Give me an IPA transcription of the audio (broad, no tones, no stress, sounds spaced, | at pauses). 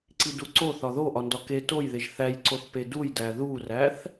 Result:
ǀ i d u ǀ o θ ɒ ð o ʔ ɒ n d ɒ k e t o j ð e ʒ θ æ j ǀ o θ p e d u j d æ ð u r æ θ